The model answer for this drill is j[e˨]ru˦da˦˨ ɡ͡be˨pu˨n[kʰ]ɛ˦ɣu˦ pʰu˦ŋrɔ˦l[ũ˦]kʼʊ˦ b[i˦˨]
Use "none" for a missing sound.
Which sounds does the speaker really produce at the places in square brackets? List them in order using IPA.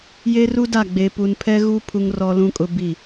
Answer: e˦, pʰ, ũ˦, i˦˨

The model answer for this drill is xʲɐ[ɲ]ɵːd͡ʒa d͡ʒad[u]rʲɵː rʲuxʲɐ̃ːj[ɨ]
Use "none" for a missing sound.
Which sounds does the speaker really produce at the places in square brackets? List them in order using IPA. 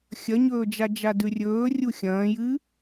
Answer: ɲ, ʉ, ɨ

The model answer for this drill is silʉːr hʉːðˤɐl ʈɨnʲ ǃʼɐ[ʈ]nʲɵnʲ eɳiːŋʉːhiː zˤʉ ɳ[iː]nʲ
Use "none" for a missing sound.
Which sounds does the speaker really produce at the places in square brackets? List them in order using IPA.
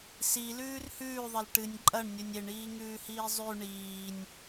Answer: ɳ, iː

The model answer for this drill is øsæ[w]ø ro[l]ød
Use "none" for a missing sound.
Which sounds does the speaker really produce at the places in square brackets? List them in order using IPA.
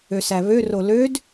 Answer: β, l

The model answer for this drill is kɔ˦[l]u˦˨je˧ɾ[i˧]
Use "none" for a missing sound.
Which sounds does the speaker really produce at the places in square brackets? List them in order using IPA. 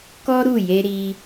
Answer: ɾ, i˧

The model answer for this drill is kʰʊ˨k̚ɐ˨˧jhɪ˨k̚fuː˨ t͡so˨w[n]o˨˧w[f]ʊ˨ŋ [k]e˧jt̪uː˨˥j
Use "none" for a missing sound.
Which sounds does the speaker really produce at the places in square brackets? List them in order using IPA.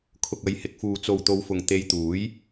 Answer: t̪, f, t̪

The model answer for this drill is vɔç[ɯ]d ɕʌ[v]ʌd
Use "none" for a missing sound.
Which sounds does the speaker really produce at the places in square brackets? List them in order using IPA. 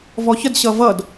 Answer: ə, v

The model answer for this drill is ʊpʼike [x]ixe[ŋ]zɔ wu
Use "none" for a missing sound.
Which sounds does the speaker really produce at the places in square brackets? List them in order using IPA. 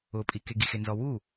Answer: ɡ, n

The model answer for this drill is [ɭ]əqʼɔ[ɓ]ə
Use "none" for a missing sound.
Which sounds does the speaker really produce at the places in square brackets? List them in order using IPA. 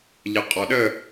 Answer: ʎ, ɗ

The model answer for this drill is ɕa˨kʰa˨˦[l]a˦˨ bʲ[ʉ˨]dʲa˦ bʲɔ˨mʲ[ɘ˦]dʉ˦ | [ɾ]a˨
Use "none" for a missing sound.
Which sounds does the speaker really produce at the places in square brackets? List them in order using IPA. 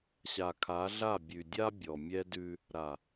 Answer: ɮ, ʉ˨, ɛ˦, ɾ

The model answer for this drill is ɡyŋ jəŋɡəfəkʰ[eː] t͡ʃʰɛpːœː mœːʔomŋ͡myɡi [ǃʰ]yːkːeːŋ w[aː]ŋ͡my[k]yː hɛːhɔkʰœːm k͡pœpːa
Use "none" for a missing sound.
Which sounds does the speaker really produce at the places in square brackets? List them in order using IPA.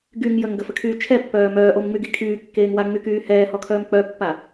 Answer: yː, kʰ, a, k

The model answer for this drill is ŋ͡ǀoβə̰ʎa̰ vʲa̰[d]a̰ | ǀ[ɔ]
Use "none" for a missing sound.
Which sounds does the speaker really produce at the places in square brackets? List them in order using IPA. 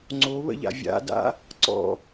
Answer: d, ɔ̰

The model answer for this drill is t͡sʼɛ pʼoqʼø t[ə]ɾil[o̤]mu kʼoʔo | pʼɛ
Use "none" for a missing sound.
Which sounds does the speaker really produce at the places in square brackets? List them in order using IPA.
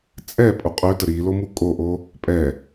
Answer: ə, o

